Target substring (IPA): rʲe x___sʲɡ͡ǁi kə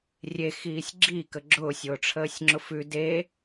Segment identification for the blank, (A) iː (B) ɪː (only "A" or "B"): A